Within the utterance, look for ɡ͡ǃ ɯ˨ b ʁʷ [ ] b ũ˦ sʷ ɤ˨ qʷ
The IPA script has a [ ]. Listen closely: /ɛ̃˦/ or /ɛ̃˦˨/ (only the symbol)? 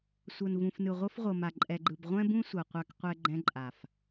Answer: ɛ̃˦